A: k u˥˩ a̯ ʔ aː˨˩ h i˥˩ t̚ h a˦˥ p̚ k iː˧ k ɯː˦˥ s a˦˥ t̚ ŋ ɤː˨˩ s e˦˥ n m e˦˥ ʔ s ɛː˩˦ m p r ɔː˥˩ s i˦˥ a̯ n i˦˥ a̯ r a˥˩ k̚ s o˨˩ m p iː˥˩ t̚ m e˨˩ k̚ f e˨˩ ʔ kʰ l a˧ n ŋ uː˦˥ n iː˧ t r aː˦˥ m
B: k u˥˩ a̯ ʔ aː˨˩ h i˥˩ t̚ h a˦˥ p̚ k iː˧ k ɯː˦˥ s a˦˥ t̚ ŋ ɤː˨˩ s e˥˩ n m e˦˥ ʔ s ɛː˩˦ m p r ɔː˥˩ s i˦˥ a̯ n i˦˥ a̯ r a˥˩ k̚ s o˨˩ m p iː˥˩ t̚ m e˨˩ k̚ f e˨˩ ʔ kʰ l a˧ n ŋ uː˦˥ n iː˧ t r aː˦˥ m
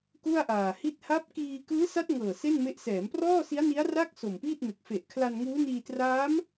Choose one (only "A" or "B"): B